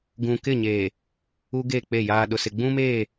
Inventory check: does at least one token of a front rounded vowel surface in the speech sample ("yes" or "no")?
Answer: no